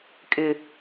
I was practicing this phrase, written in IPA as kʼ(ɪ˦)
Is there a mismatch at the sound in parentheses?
no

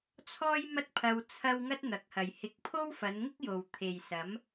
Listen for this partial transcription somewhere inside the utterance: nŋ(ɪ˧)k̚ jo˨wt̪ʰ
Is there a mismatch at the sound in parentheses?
yes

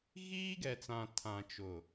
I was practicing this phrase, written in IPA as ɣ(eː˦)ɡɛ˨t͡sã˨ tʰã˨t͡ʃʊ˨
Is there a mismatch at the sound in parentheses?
yes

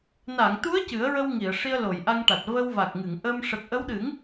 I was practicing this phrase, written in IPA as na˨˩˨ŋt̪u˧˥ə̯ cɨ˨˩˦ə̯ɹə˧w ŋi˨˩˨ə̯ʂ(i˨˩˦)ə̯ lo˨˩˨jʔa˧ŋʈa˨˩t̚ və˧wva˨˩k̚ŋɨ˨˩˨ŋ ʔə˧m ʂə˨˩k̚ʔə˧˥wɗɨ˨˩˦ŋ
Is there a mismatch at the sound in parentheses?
yes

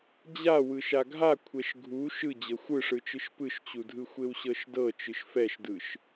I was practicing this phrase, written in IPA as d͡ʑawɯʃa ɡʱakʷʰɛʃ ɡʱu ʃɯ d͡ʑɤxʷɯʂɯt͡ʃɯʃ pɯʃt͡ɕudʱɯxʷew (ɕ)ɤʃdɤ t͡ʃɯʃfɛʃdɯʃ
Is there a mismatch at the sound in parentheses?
no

